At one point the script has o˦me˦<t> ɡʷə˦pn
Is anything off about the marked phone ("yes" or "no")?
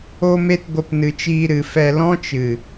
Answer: no